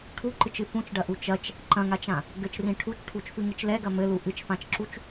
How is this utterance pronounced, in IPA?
ʈʰ u ǃ ɨ t͡ʃ ɨ f ũ t͡ʃ ɖ ɐ ʔ u t͡ʃ ɐ t͡ʃ | ǃ ɐ̃ ŋ a t͡ʃ ã | ɡ ɘ t͡ʃ r ĩ ʈʰ u t͡ʃ ʈʰ u t͡ʃ f ɨ ŋ ɨ t͡ʃ l ɛ ɡ ɐ m ɘ l u ʔ ɨ t͡ʃ f ã t͡ʃ ǁ u t͡ʃ

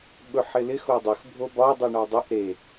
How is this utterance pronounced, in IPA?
ɓ ɵ ħ ɪ l ɪ x o dˤ ʏ x bʱ o b ɒ dˤ u ɳ ɒ dˤ e ʔ ɾ e

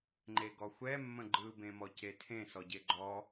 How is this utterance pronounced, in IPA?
ŋ͡ǃ e ɡ ɔ xʷ ɛ mː ə̃ ɡ͡ǃ ɯ b ẽ m ɔ c e tʰ ẽ s ɔ ɟ e ɡ͡ǃ ɔ

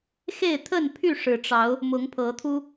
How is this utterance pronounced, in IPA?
x e˥˨ ɪ̯ t̪ʰ ə˥˨ n pʰ y˥˨ ʂ ɻ̩˨˩ ʈ͡ʂ ɑ˨˦ ʊ̯ | m ʊ˨˦ ŋ pʰ ɤ˨˦ t̪ʰ u˦

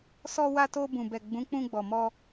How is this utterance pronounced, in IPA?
s ɔ˧ w a˧ t o˧ b ũ˨ b ɛ˨ ɡ͡b ũ˨˦ k͡p ũ˧ ɡ͡b ɔ˨ m ɔ˧

